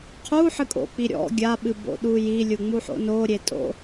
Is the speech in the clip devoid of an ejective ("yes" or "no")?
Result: no